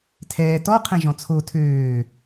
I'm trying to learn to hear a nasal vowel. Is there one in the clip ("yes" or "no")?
yes